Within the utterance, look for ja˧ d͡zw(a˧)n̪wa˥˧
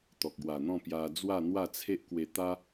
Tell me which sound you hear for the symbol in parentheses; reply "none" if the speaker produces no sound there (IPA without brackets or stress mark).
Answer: a˥˧